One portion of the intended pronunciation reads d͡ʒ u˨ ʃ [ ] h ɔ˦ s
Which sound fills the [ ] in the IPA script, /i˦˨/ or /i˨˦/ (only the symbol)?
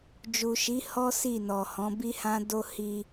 i˨˦